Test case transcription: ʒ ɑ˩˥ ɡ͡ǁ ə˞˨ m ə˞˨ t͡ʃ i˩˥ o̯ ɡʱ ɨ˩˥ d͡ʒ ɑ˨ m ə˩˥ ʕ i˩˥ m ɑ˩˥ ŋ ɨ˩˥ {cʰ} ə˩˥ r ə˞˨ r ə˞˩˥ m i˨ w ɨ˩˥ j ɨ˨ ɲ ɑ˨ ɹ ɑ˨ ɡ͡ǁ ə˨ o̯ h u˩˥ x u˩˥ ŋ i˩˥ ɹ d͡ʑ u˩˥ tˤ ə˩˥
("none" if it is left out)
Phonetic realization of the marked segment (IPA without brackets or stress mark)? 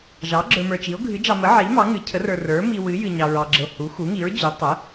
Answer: cʰ